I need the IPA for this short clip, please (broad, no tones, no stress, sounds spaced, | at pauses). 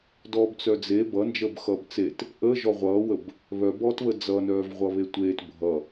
d ɔː b t͡s œ d͡z e b ʌ n d͡ʒ əː b x ʌː b t͡s e t | ʔ əː ʒ ɔ ʁʷ ʌː w ə b | β œ b ɔː t β ə d͡z ʌ n œː v ʁʷ ʌ β e tʷ eː t bʱ ʌ